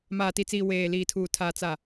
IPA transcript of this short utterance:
m aː˨ t i˨ t͡s iː˨ w eː˨ l iː˨ tʰ uː˨ tʰ aː˨ t͡s a˨

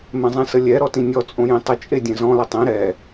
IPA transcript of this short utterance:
m ɛ̃ zˤ ẽ s ə lʲ ɛ ɾ ɔ t ĩ nʲ ɔ t͡sʼ õ j ĩ tˤ ə t͡ʃʼ e dʲ ẽ z ɔ̃ l ə tˤ ĩ ɾ ɛ

